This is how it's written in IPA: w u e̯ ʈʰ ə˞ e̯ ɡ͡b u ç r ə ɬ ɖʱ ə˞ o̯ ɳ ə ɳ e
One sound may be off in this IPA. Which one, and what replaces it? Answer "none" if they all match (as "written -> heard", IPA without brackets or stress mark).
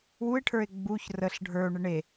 none